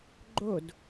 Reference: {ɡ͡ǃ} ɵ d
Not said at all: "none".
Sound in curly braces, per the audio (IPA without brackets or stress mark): ɡ͡ǃ